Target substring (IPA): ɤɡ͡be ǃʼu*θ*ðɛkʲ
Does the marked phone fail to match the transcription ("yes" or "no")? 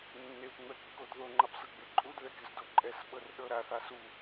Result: yes